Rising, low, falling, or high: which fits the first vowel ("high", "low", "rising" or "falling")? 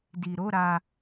low